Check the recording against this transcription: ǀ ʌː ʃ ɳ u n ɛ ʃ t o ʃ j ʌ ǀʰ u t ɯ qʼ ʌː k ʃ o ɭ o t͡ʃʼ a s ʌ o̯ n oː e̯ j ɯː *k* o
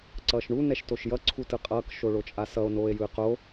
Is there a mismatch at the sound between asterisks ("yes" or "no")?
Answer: yes